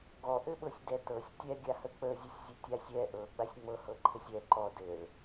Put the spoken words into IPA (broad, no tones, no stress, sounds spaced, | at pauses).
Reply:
ɡ ɔ ʔ ɘ ɓ ɤ sʲ d ɛ t ɤ sʲ tʲ ɛ ɡʲ a h ə k͡p ə zʲ ɘ sʲ zʲ ɘ tʲ a sʲ ɛ ʔ ɤ ɡ͡b a sʲ ŋ͡m ɤ h ɤ ǃʰ ɘ sʲ ɛ ǃ ɔ d ɘ ɭ